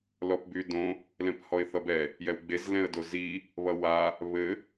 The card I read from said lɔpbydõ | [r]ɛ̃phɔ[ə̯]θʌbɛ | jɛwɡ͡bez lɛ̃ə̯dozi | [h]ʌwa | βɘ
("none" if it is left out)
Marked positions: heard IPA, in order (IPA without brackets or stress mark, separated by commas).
l, ɪ̯, β